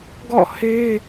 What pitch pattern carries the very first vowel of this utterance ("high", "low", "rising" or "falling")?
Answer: falling